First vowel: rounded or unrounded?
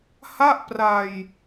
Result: unrounded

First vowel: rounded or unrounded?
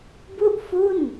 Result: rounded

